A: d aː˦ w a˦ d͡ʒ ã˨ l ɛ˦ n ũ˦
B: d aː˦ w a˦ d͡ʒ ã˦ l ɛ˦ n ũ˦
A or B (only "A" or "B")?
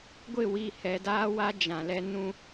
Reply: A